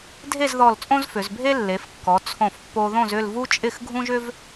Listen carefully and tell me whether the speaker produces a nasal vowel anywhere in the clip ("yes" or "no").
yes